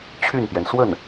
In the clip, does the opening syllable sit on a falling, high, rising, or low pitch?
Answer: falling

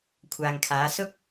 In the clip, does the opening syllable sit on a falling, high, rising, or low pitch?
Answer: low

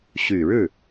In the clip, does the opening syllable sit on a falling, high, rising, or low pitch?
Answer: low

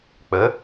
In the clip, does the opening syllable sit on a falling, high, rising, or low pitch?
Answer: rising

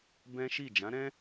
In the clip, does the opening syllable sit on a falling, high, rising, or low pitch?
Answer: high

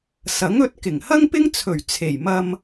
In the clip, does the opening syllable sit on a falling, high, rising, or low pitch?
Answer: rising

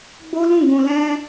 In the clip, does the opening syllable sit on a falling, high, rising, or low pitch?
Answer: high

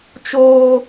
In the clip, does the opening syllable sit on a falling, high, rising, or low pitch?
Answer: high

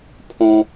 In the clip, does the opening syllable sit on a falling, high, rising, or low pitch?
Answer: high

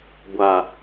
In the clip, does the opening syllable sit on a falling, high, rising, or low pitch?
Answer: low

